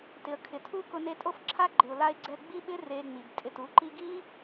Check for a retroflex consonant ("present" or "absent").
absent